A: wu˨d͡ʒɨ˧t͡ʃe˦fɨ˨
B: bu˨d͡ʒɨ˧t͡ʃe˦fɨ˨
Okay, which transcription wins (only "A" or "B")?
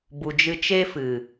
B